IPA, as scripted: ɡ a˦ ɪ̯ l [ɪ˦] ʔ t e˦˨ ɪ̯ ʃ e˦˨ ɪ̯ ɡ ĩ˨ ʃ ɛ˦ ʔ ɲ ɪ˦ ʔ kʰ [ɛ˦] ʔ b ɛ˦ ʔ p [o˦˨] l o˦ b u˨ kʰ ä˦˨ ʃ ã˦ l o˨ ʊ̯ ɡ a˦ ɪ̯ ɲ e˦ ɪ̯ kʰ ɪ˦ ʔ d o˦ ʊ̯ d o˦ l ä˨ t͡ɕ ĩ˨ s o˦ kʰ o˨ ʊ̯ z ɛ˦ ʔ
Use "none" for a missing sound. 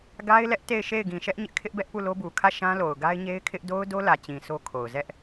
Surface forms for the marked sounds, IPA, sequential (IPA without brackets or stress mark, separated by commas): ɛ˦, ɪ˦, u˦˨